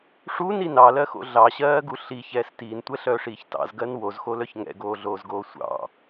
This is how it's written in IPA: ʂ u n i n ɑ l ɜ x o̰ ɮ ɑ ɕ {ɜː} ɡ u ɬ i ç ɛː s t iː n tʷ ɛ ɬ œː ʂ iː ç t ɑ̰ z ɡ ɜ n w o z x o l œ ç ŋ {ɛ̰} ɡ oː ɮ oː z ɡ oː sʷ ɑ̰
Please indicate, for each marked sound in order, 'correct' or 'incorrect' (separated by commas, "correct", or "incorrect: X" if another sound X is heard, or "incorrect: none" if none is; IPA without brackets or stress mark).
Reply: correct, correct